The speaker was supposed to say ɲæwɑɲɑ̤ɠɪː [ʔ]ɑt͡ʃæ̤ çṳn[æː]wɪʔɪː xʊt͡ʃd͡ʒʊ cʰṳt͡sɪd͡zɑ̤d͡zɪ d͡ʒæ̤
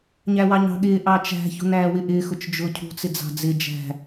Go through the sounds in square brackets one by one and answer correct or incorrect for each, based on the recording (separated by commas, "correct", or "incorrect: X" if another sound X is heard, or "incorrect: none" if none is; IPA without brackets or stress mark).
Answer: correct, correct